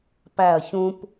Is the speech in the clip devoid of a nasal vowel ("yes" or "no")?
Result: no